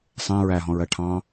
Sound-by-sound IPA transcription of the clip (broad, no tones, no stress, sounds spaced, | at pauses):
sˤ ɛ̃ ɹ æ ɦ ɔ̃ ɹ ɜ ʈʰ ɑ̃